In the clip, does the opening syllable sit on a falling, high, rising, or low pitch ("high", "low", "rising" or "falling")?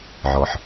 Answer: low